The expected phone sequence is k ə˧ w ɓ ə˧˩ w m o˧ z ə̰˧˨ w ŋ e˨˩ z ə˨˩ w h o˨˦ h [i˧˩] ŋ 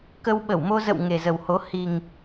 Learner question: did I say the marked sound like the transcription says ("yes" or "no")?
no